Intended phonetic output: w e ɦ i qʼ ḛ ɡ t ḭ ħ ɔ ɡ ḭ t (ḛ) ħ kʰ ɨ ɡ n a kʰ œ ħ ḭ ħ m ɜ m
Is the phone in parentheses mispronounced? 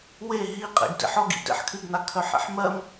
no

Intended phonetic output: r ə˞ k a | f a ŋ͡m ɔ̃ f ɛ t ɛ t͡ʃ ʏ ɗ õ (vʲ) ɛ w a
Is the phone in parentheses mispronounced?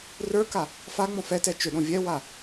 no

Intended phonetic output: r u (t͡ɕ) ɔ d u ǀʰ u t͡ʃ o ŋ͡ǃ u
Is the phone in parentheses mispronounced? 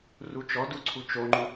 yes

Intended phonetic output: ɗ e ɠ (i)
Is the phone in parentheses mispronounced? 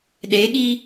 no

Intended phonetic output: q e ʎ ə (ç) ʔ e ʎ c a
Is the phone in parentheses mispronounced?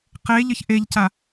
no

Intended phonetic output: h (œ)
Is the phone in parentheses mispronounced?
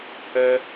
no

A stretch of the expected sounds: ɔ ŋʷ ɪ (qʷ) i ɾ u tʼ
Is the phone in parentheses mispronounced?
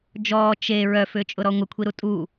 yes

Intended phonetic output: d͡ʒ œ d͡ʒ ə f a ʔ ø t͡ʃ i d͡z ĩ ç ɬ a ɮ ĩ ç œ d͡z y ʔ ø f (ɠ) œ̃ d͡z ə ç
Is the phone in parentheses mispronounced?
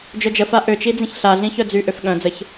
no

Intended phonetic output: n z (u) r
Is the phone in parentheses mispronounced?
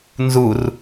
no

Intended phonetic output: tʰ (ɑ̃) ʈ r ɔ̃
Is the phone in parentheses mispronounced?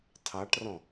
yes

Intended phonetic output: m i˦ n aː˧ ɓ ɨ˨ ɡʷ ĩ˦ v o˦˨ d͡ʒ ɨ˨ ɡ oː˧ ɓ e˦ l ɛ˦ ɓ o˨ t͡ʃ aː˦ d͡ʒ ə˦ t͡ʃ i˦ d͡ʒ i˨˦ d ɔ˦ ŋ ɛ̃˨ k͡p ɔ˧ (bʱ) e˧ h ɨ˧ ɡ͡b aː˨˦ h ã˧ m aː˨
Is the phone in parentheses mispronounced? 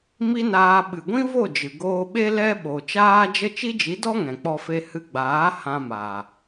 yes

